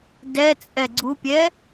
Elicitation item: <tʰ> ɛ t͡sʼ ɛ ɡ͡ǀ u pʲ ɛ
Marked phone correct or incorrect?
incorrect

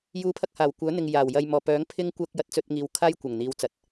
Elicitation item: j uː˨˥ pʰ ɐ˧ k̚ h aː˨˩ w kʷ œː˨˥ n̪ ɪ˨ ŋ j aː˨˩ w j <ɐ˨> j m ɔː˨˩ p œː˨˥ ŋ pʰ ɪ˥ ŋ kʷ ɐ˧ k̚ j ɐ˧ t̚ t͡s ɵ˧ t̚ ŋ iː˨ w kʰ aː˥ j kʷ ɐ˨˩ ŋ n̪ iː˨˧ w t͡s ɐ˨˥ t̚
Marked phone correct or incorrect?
correct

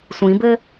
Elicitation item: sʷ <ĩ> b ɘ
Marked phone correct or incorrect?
correct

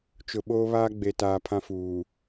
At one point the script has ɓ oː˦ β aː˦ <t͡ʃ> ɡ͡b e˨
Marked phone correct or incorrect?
incorrect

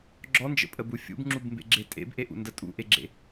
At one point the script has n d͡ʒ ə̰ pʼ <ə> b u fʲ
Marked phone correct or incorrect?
correct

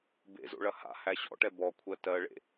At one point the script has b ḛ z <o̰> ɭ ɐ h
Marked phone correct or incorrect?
correct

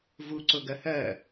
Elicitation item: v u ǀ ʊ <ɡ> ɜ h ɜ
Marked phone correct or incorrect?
correct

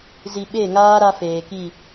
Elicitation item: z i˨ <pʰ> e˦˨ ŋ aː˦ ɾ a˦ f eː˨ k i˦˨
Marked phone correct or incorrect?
incorrect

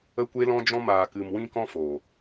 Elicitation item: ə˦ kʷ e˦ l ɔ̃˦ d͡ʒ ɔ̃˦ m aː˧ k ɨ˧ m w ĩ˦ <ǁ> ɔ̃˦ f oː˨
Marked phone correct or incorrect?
incorrect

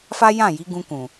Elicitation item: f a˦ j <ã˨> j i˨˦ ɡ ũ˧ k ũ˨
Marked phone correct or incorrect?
incorrect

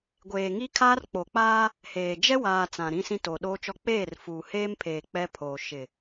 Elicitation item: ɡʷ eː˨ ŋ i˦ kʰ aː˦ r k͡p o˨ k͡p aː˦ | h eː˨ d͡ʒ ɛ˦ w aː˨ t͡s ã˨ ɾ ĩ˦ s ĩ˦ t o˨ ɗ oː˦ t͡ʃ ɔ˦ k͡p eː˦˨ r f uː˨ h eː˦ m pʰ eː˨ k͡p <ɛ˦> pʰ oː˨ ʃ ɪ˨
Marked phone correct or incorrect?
correct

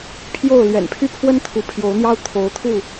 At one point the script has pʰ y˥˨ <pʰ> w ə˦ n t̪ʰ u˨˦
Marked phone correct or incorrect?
correct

